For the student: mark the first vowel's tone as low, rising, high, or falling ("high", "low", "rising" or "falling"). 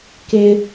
high